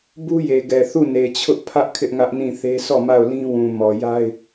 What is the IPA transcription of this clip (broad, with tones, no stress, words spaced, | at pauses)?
bu˦je˨ɡɛ˨ θu˦˨ne˨t͡ɕʰʊ˦ʔ pʰä˦ʔ kʰɪ˦ʔŋä˦ʔnĩ˦˨θe˦ sɔ˦˨ma˦˨ʊ̯lĩ˦ wũ˨mɔ˨ja˦ɪ̯